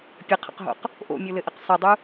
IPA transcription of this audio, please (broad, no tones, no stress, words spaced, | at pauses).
pʲəqʰə̰qɦo̰q | ʔo̰mʲolɘʔɘq sˤɘdˤu